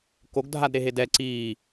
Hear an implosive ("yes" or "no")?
no